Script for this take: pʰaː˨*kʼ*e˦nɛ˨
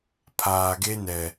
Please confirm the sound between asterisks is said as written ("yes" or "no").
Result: no